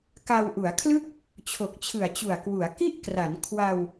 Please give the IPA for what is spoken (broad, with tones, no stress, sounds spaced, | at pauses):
k a˧ w ʔ u˩˦ a̯ kʰ l ɯ˥˩ k̚ | t͡ɕʰ o˨˩ k̚ t͡ɕʰ ɯ˨˩ a̯ t͡ɕ u˨˩ a̯ k w u˩˦ a̯ k i˥˩ ʔ k r a˩˦ n kʰ w a˧ w